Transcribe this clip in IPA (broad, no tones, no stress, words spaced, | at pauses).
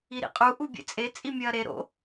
iɾḭqʼu ʔubʲḛt͡sʼe t͡sʼimʲɐːɾe ɾo̰